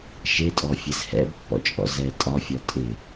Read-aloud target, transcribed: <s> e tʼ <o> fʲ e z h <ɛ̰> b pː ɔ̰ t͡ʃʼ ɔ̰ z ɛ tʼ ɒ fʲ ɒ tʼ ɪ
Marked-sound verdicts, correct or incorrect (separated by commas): incorrect, incorrect, correct